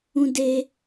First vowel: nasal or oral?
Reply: nasal